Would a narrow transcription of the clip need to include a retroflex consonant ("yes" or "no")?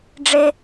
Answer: yes